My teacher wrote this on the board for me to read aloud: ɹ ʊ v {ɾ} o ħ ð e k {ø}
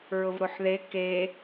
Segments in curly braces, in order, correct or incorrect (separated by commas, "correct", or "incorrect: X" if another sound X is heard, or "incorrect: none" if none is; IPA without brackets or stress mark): correct, incorrect: e